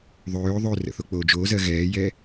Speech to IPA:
ðˤ øː ðˤ ø r ə̰ θ o k͡p oː d͡ʒ oː z ɜ ɣ ɛː j ɛ

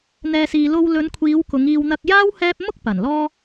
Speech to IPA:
n̪ ɛː˨ s iː˨ l o˧ w l ɵ˨˧ n kʷʰ iː˨˧ w k ʊ˨˧ ŋ iː˧ w n̪ ɐ˧ k̚ j aː˥ w h ɛː˥ p̚ m ʊ˥ k̚ p ɐ˨˩ n l ɔː˥

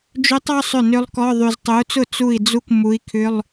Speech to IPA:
d͡ʒ ø˦˥ tˤ ɔ˧˥˧ sˤ ʏ˥˩ n ø˦˥ lˠ k ɔ˧˥˧ ðˤ y˧ z tˤ ø˨˥ u̯ t͡s ʊ˥˩ t͡s u˥˩ i̯ d͡z u˥˩ k m u˨˥ i̯ kʰ ʏ˧˥˧ lˠ

